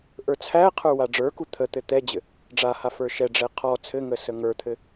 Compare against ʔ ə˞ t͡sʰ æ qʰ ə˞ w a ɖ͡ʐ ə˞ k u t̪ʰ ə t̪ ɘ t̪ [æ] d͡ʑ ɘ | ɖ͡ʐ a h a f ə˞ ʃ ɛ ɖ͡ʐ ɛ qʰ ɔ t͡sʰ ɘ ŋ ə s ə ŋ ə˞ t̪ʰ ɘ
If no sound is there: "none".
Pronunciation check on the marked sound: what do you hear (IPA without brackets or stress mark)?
ɛ